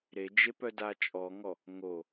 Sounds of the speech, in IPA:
ɾed͡ʒe pœdat͡ʃʼɔŋɔ | ŋo

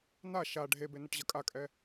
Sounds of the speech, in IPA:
na ʃa ɖʱebenʌʈʑʌ kʼakʼɛ

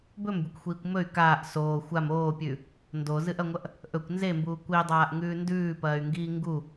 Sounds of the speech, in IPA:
bɵmbʲɵkʷxʷiːkʷ mɵy̯ kaːʔ soː xʷam oːpʲʉ | ndozɨʔɐŋʷɐʔ | ʔɵkʷ nzembuː kʷidˤaːʔŋʉː ndʉːpɐːy̯ŋɡiː ŋɡu

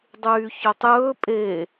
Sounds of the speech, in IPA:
dˤyːçɵtˤjɵː pʼe

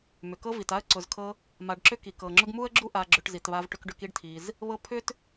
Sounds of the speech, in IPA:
mʏ˩kɤ˦vi˩ta˦ə̯ ǀʊ˨zkʰɤ˦ | ma˨ɖǁʏ˦ ki˩k ɤ˩ŋ͡ǁʊ˦ɡmu˥ə̯ɡ͡ǁu˥ ʔa˦ɡ͡ǁʏ˦ʈzi˨tβa˥v ʈʏ˦kɖʏ˦k i˥ɖtʰi˨z | βɤ˦pʰʏ˥t

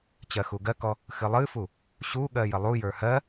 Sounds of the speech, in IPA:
t͡ɕɜxuɡɜkɔ | xɨlˠɨfu | ɕuɠɜ jəlˠujə˞ hɜ

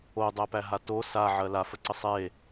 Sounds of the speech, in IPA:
odˤæpæɦa to saʕɜ lafəǀə sˤe

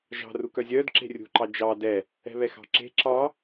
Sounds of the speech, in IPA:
ʒɑ̤ rukœzʲœːd ǁe̤rʲṳ ǃɑd͡ʒɑ dɛ | ɛ̤βɛxɑ̤ǁe̤ ǁɑ

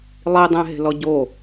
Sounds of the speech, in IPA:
lˠidˤẽɦe̤lɔ ɟo

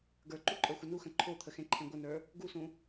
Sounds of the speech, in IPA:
ɡə˞ǃuǃʼə˞xʷə nuxə̃ ǃʰot̪ʰəxẽǃʰẽ ɡʷənə˞ | ɡusũ

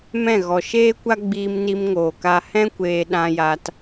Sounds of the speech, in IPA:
mɛ̃˦˨ɣɔ˨ ʃeː˦kʷa˦ ɡ͡biː˧mni˧mŋoː˨ka˧ hɛ̃˦kʷeː˧ ɗã˧ ja˧t

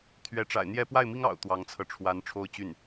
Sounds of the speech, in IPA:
t̪ʰɥɛ˧˥ʈ͡ʂa̰˨˩ɪ̯ n̪jɛ˥ pwa˥˩ɪ̯mi˥ŋ ɑ̰˨˩ʊ̯ t̪wɑ˧˥ŋt͡sʰɤ˧ʈ͡ʂʰwa˧˥n ʈ͡ʂʰo˥˧ʊ̯t͡ɕy˥˩n

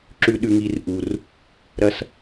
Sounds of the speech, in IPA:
ǁʉ˦ ɗʉ˦ŋi˦r ʔu˨r | ɾɐ˦s

